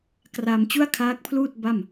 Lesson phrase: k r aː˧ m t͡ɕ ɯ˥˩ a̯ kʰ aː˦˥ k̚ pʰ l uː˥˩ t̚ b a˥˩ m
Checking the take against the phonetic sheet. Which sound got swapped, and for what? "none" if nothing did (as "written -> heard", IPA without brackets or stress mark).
ɯ˥˩ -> u˥˩